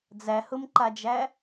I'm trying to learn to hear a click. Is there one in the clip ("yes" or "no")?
yes